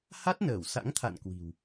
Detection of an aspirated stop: present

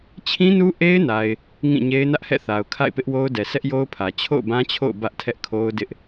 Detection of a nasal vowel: present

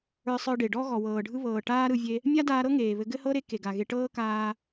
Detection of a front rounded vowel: absent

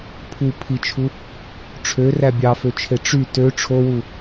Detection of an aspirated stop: present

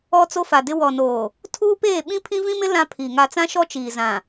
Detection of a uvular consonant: absent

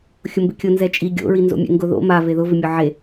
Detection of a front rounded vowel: absent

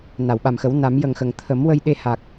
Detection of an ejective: absent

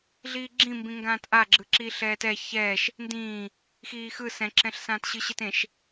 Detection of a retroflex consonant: absent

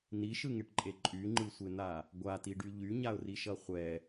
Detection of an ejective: present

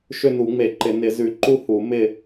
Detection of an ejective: absent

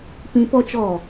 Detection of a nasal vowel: present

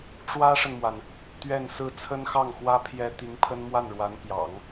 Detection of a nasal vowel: absent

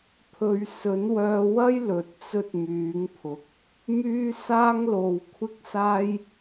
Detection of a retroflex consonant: absent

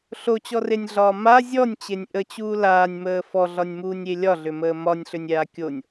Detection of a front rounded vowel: present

